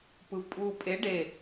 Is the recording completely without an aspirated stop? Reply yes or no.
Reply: yes